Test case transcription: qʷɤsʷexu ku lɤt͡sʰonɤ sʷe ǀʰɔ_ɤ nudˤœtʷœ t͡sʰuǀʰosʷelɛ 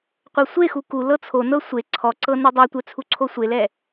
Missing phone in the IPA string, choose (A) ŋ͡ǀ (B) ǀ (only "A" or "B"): B